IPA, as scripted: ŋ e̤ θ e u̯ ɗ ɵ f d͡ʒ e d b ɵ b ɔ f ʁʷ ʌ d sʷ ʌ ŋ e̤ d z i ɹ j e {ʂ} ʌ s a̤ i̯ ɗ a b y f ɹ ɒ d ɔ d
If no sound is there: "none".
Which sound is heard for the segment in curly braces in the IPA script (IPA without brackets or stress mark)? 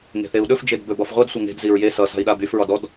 s